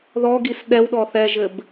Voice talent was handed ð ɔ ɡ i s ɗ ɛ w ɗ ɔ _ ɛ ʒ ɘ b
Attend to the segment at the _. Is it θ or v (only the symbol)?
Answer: θ